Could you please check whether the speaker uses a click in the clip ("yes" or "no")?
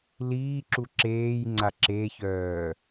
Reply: yes